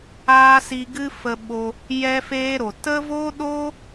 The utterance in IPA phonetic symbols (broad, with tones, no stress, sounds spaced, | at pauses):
aː˦ s i˧ ɡ ɨ˦ f ə˧ ɓ o˧ | j ɛ˦ f eː˦ ɾ o˨ t ə˦ v o˦ ɗ o˦